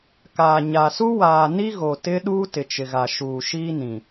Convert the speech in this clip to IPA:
k aː˨ ɲ a˨ s u˦ w aː˨ n i˦ ɣ o˨ t ɪ˦ ɗ uː˦ t ɪ˨ t͡ʃ ɪ˨ ɣ a˨ ʃ uː˨ ʃ iː˦ n ĩ˨

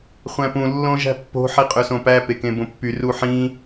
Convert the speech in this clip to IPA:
χʷ æ̃ p ũ lː õ ʒ æ̤ pː o̤ ħ i qʼ ø s õ p æ p e k ẽ b õ pː y r u ħ ĩ

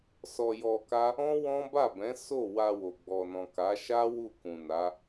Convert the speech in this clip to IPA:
s ɔ˧ j ɔ˧ k a˦ | ɔ̃˦ w ɔ̃˦ b a˦˨ b ɛ̃˨˦ s o˦˨ w a˧ w o˨ ɡ͡b ɔ˨ n ɔ̃˨ k a˨˦ ʃ a˦ w u˦˨ k ũ˨ n a˨˦

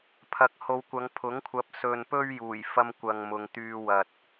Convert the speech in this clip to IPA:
pʰ ɐ˨˥ k̚ h o˨˧ w kʷ ɐ˨˧ ŋ pʰ ʊ˨˥ ŋ kʷʰ ɐ˨˥ p̚ s ɵ˨ n p ɵ˧ ɥ j uː˨˩ j f ɐ˧ m kʷ ɐ˨ ŋ m ʊ˨ ŋ t̪ yː˧ w ɐ˨ t̚

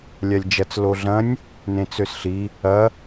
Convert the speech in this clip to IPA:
lʲ a lʲ d͡ʒ ɐ t͡s l o ɮ ɐ̃ nʲ | n ẽ t͡s ø s ɬ i | ɐ

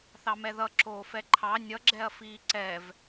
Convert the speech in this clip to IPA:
θ ɑ m ɛ ð ʌ ǁ oː f ɛ ǃʰ ɑ nʲ ʌ ɡ͡ǁ ɛ ɐ̯ f iː ǀ ɛ v

